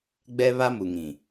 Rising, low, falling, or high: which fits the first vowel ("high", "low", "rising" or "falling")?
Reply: high